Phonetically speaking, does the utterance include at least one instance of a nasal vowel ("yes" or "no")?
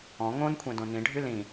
yes